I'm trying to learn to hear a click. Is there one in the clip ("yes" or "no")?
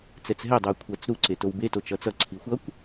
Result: yes